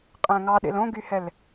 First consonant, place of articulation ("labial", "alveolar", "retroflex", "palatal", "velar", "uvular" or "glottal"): uvular